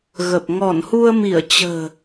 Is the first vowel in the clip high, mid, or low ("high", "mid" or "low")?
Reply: mid